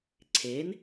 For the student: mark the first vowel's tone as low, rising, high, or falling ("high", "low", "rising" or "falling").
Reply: rising